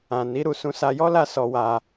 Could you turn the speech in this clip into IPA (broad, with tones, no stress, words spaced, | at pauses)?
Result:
ã˨ ni˨˦ɾu˧ sũ˧sa˧jɔ˦la˦˨ sɔ˧wa˧